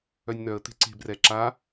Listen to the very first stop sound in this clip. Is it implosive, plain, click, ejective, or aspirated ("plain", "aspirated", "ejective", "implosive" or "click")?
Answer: plain